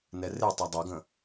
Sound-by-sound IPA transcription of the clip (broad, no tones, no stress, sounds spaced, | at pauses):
n ɛ r e tˤ ɜ dˤ ə˞ ɡ ə̃